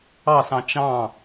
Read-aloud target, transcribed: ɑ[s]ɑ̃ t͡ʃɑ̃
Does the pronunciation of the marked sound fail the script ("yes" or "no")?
no